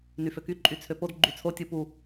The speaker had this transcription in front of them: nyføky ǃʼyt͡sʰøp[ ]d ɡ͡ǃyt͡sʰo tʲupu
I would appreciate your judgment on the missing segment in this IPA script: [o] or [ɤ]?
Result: o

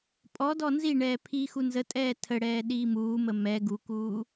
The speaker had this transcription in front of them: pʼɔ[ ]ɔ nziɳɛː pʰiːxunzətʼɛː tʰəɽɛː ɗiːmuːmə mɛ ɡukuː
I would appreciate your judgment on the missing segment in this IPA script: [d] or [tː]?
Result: d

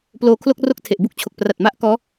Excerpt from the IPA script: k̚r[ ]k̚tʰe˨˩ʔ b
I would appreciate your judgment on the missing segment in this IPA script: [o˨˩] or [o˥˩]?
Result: o˥˩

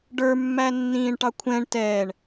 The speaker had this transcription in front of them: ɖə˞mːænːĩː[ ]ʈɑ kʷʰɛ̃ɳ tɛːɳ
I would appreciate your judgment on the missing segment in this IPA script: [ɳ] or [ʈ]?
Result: ɳ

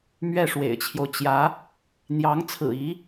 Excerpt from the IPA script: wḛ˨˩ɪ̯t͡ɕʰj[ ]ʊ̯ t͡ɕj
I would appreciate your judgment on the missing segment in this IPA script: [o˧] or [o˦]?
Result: o˦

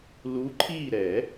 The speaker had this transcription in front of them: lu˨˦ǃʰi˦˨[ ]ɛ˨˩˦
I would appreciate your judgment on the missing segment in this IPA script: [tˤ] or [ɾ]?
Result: ɾ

